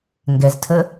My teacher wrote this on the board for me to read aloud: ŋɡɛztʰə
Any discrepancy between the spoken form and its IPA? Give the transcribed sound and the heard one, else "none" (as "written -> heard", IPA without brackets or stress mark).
none